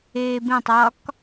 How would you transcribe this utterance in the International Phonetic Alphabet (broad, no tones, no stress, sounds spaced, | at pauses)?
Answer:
eː b ẽ tˤ ɒ k